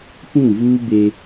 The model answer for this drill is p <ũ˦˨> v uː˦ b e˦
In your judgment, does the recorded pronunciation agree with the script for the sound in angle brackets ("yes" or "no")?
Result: yes